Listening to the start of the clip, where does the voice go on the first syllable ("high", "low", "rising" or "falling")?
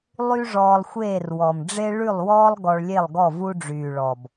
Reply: high